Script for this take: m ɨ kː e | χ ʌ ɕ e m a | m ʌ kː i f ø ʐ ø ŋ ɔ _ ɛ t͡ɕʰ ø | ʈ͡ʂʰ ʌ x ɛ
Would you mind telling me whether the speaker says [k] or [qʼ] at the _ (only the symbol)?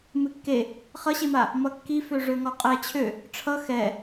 qʼ